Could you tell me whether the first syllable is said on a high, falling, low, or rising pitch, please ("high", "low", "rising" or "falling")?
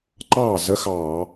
falling